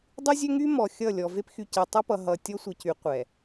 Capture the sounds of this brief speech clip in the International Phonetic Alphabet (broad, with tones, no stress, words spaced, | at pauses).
dˤy˦zʲø˦ŋy˦ mɔ˨xʲʌ˦˨ lʲɔ˨ve˦p xy˨ce˨tˤɛ˦pʌ˨ ɦʌ˨ tʲɔ˦ sʷʌ˨cy˨˦ qʷɛ˨